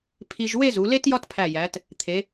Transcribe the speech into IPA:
pʰ i˧ ʒ w e˥˧ z u˩˧ l e˥ t j ɒ˥ t pʰ æ˧˩ j æ˩˧ t | t̪ʰ e˩˧

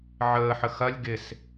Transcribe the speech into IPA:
ʕ əː ħ ə x ɐ lʲ ɡ ɪ s

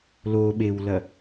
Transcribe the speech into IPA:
l o ɓ e w l ɐ

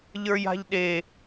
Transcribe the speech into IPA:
ʎ ə˞ j a̤ ʎ ɗ e

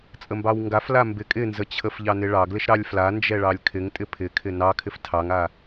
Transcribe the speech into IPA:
t͡sʼ ə m b ɑ w ŋ ɡ a f l a m b ɪ kʼ ɪ n z ə t͡ɕʰ ə f ʎ ɑ n ɪ ɭ ɑ ɡ l ɪ ʃ ɾ ɑ lʲ f l a n d͡ʒ ɛ ɭ ɑ lʲ kʰ ɪ ŋ tʼ ɪ pʰ ɪ kʰ ɪ n ɑ kʰ ɪ f tʰ ɑ ŋ a

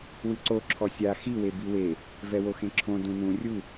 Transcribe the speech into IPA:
w ɨ ǀ o ǁʰ ɔ sʲ a x i w e b i w e | v ɛ w o x ẽ ǁʰ õ d ũ n ũ rʲ u

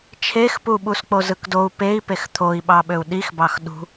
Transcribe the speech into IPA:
t͡ʃʰ e x p u ɓ u s k͡p o z ɯ k d o u̯ p e i̯ p e x t̪ʰ o i̯ ɓ ɑ ɓ ø u̯ ɗ i x b ɑ x ɗ ṳ

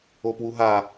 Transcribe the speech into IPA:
o p w u ɦ a

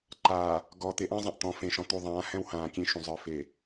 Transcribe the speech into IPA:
ǃ aː˨ | ɡ ɔ˨ t̪ e˨ ʔ ã˦ zˤ ɛ̃˨ ʔ t̪ ɔ̃˨ f ẽ˨ ʃ ɔ̃˨ t̪ u˨ ðˤ ãː˨˦ h ɛ̃˦ w h ãː˨ kʲ ẽ˦ ʃ ũ˨ zˤ ə˞˨ f e˨

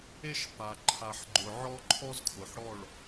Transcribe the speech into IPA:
e˦ ʃ f a˨ ǃʰ a˨ ħ ɡ͡ǃ ʊ˨ ʕ ɔ˦ ǃʰ ɔ˦ z kʰ ʊ˨ ħ ɽ ɔ˦˨ ɭ

